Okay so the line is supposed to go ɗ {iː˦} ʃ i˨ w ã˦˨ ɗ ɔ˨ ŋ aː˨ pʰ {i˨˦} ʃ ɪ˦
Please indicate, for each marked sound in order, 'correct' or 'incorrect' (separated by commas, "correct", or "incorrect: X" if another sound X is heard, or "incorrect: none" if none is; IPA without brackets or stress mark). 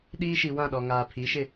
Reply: correct, correct